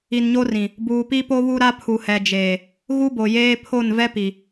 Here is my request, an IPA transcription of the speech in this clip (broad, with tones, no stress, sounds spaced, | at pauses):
i˨ n ɲ o˦ r ĩ˨ | b uː˨ p i˦ p o˦ β u˦ ɾ a˦ pʰ u˨ h ɛ˨ d͡ʒ eː˨ | ɣ u˦ b o˨ j eː˦ pʰ o˦˨ n v ɛ˦ p i˨